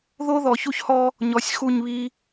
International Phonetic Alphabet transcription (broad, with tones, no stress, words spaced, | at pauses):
ðo˦ðɔ˨çu˦çhɔ˦ | ɲɔ˨sʲxu˦˨ɲβi˦